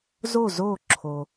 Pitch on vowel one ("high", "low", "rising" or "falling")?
falling